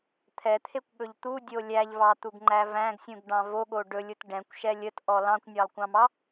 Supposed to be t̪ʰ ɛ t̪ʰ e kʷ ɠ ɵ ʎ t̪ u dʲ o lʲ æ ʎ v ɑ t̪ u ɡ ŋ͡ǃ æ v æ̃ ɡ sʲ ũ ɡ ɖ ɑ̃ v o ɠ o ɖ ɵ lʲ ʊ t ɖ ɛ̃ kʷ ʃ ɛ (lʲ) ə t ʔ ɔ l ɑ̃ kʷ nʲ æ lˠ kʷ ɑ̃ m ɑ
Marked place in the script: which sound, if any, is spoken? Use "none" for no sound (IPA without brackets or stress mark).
lʲ